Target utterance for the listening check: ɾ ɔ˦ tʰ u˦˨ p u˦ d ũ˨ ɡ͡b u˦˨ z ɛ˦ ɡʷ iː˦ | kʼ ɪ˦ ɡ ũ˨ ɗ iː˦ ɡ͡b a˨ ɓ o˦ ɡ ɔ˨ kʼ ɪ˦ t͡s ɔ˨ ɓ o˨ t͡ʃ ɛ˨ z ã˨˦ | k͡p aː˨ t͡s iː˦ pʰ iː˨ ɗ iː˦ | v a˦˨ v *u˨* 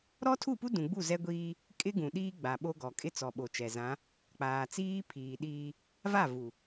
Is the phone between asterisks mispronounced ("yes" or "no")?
no